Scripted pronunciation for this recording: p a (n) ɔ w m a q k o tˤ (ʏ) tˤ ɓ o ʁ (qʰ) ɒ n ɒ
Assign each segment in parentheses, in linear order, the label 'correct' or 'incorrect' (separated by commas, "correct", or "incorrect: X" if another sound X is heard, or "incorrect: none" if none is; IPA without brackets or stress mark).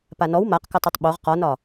correct, incorrect: u, incorrect: q